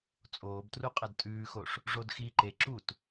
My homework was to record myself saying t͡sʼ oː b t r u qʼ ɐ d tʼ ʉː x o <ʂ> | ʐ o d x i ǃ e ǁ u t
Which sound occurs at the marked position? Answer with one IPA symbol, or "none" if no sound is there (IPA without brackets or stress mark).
ʂ